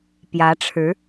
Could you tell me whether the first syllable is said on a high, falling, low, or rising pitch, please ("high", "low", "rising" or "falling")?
rising